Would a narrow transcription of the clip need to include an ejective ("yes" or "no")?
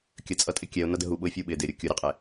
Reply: yes